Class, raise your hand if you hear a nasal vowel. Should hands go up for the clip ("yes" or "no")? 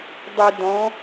yes